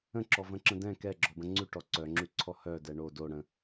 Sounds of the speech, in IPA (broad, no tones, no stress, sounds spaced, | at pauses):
ə̃ ǁ ɔ v ə̃ ǁ ə̃ d ɛ̃ k ɛ ɡ͡ǁ ɔ b ə̃ ŋ͡ǀ ʉ ʈ ɔ ǀ œ ŋ͡ǁ ʉ ǀʰ ɔ h œ d ɛ ɳ o d o ɽ ə̃